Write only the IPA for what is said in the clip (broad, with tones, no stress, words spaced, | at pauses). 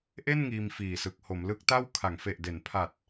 ʔe˥˩n ŋiː˧mfiː˨˩sɯ˨˩k̚ ho˩˦mlɯ˦˥k̚ta˥˩w kʰa˩˦ŋfe˨˩ʔde˩˦npʰa˨˩t̚